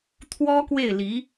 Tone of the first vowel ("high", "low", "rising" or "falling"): high